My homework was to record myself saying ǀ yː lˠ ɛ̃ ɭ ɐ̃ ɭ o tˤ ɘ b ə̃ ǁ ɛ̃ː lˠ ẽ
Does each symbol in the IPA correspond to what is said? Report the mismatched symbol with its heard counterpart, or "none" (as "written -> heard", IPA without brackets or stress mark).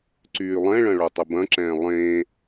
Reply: ə̃ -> ɐ̃